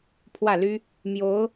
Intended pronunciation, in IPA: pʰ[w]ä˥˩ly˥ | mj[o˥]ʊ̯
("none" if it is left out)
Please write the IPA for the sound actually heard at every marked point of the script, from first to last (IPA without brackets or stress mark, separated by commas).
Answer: w, o˧˥